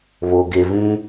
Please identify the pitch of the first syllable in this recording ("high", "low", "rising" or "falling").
low